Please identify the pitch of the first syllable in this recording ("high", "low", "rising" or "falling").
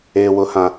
low